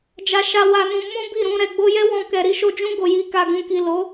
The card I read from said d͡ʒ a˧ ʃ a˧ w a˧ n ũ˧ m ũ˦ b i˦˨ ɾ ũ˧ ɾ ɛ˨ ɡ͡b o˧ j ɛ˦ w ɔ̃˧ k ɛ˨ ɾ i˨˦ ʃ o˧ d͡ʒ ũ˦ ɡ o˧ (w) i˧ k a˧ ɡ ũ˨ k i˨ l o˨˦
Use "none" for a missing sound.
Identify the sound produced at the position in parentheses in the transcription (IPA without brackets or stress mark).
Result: j